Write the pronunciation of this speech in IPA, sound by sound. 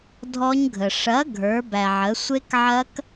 dʱ ɔ˦˥ ɲ ɡʱ ə˨ ʂ ɐ˨˥ ɡʱ ə˞˨˥ b æ˨ ʕ ə˨˥ sʷ e˦˥ k ʕ ɐ˦˥ k

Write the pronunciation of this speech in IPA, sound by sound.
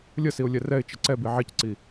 lʲ ə s i ʊ̯ lʲ ɛ r ɛ ɪ̯ t͡ʃ ə ǀ ɛ b i ʕ i c ǀ i

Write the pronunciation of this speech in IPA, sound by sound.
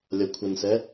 lʲ ʌ kʷʰ ə n s ɛ

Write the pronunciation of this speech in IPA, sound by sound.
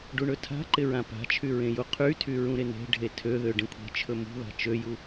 ɖ u ɳ ɵ tʰ a̤ ǃ ɪ ɹ ã p a̤ t͡ʃʰ y ɹ ẽ j u qʰ y tʰ y ɹ ũ ɾ ɪ n e̤ ɖʱ e tʰ ø ð ø ɖ ẽ kʷʰ e̤ t͡ʃʰ ɵ m ṳ ð a̤ t͡ʃ ø j u

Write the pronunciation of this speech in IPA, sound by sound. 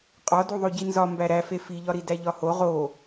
qʼ ɒ d u ðˤ o ɟ i n z ɒ m b æ ɾ æ f e f i ʎ ɒ ɾ i d æ ʎ ɒ h o ʁ o

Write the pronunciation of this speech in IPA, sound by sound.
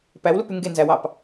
p æ w l u p y ŋ ɡ e n z æ w ɑ p

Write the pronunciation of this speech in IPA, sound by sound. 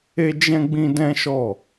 e˦ d͡ʒ ɛ̃˦ ɡ͡b ĩ˦ d ɛ̃˦ ʃ ɔ˦˨

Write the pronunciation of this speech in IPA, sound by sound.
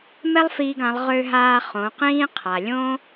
m ɛ˥ lˠ f iː˧ ɡ ã˩˧ lˠ ʁ ø˧ ɦ aː˧ χ õ˩˧ q ĩː˥ qʰ a˩ lʲ õ˥

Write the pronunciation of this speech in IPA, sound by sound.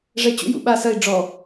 ʐ ɛ t͡ɕ ṵ j ṵ ɓ a s ɐ i̯ ɖ͡ʐ ɔ

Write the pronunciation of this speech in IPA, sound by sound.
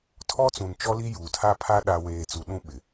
tʰ ɔ˦ t͡s ũ˨ n t͡ʃ ɔ˦ l i˦ j uː˨ tʰ a˦ pʰ a˦ ɗ a˦ w eː˨ t͡s u˨ ɗ ũ˦ ɓ ɪ˨

